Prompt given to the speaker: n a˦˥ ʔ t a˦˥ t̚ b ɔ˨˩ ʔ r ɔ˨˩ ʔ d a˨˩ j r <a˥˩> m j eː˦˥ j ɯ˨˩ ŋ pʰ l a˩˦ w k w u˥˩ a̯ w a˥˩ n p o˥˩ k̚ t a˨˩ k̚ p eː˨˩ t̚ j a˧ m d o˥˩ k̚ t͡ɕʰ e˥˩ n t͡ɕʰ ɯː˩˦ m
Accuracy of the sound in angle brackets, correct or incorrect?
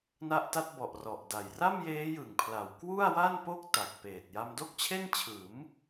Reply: correct